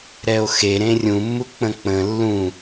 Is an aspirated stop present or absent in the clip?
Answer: absent